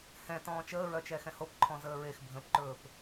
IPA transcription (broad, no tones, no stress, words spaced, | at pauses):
hɛ̃ tɔ̃ːt͡ʃəːɹœt͡ʃɛ xɛ̃hopǃʰɔ̃ zəːɹexbʱə̃ːpǃɵːp